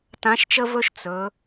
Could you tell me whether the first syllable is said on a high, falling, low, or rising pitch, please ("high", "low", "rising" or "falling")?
rising